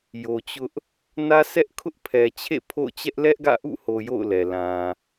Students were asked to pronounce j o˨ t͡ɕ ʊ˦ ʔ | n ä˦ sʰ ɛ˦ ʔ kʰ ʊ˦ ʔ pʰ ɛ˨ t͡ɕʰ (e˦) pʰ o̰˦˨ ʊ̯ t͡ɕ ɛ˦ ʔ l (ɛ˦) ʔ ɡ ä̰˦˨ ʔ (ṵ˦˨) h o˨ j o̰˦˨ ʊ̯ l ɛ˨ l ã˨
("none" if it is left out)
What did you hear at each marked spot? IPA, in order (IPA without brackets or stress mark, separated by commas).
ḛ˦˨, ɛ˦, ṵ˦˨